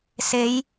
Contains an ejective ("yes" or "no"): no